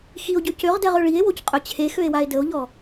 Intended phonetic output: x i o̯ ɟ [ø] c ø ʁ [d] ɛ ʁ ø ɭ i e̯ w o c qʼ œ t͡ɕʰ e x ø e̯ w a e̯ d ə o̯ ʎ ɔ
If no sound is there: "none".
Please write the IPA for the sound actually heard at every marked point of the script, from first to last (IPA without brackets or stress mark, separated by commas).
ø, d